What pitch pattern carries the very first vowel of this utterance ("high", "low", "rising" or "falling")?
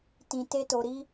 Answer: low